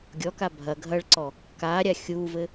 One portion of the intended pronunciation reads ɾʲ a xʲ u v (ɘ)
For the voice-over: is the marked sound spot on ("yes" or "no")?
yes